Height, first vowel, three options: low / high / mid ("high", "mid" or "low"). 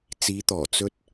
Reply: high